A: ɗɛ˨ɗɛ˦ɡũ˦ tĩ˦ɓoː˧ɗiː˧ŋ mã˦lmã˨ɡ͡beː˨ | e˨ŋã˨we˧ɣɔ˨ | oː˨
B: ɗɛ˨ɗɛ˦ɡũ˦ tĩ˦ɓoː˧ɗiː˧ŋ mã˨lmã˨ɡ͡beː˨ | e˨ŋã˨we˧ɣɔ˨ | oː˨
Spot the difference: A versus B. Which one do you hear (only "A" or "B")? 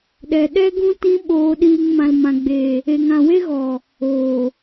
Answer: B